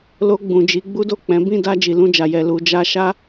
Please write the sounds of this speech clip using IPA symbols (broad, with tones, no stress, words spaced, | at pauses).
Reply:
lo˧ɡ͡bũ˨d͡ʒi˨˦ ɡ͡bu˦do˦˨ k͡pɛ̃˨˦ bĩ˦˨da˧ d͡ʒi˨lũ˧d͡ʒa˨jɛ˨ lu˨ d͡ʒa˧ʃa˦